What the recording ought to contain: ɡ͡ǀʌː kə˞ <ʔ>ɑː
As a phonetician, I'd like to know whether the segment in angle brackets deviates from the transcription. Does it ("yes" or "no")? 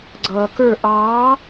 no